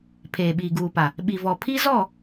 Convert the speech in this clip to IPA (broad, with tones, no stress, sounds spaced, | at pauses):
pʰ eː˨ ɓ iː˨ ɡ uː˨ p a˨ | ɓ i˨ v ɔ˨ pʰ i˦ z ɔ˦˨